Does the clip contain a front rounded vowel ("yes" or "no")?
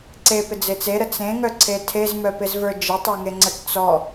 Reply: yes